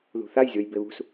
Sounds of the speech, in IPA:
ð ṳ θ a j zʲ o j b e β ṳ s

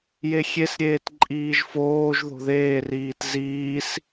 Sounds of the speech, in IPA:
j e xʲ e s ɾʲ eː t ǃʼ iː ʒ f oː ʒ ð o̤ ð eː r iː t z iː s

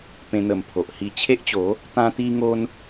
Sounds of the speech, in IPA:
p ẽ˧ n̪ ə˨˩ m pʰ o˨ ʔ h i˥˧ t͡ɕʰ e˦ ʔ t͡ɕ o˨˦ | t̪ ã˧ t̪ i˧ ŋ o˧ n

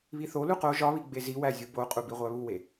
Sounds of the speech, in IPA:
β i θ o l u q o ʒ ɒ β i ɡ͡b e z i w æ zʲ u b o qʼ u b i ʁʷ æ β u w e

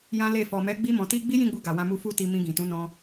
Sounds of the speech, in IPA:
j ã˦ l e˦˨ f ɔ˨ m ɛ˨˦ ɡ͡b i˦ m ɔ̃˧ t i˦ ɡ͡b i˦ j ĩ˦˨ ɡ͡b u˧ ɡ a˨ w ã˧ m u˧ f u˦ t i˧ m ĩ˧ ɡ ĩ˨ t ũ˨˦ n ɔ̃˧

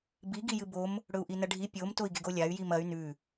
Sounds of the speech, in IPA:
b i ɡ i j ɨ b o m | ɽ ɵ u̯ ʔ i n ɐ ɖʱ i pʲ o m t o i̯ ɡ e ɡ o lʲ a y̯ j i m ɐ y̯ n ʉ

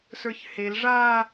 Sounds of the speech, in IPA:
s ə˞ ç h e l ʐ a

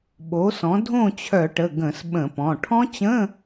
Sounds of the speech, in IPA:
ɓ o˩˥ s ɔ̃˩˥ dʱ õ˥˨ t͡ɕʰ œ˧˩˧ ʈ ə˩˧˩ ɡ ə̃˧˩˧ s ɓ ə̃˧˩˧ p ɔ̃˩˧˩ ʈʰ ɔ̃˦˥ t͡ɕ ə̃˧˥˧

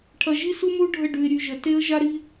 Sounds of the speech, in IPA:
ʈʰ ɐ˨ ʒ i˦ s u˦ m u˦ ɖʱ ə˦˨ ɖ ʉ˨ ɪ̯ ɾʲ ʉ˨ ʒ ə˨ t e˦ ə̯ ʒ a˦ ɾ i˦

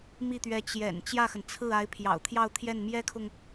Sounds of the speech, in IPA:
m i˥˩ t̪ ɥ ɛ˧˥ t͡ɕ j ɛ̰˨˩ n t͡ɕ j ä˥˩ x ə˩ n t͡sʰ ɹ̩˥˩ a˧˥ ɪ̯ pʰ j ɑ̰˨˩ ʊ̯ t̪ʰ j ɑ˥˧ ʊ̯ t̪ʰ j ɛ˥˩ n m j ɛ˥ kʰ ʊ˨ ŋ

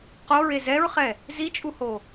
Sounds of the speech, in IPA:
q o ɹ e z ɛ ɹ χ ɛ | z i t͡ʃʼ u h o

